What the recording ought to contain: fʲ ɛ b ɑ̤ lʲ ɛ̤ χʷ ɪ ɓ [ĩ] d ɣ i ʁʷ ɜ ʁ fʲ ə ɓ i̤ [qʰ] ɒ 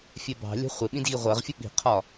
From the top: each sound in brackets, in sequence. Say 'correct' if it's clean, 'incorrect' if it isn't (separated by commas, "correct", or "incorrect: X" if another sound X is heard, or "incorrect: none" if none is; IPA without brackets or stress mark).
correct, correct